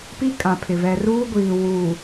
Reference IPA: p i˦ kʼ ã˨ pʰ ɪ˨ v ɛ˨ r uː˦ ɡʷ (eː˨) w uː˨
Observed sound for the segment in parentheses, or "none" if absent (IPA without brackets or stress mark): iː˨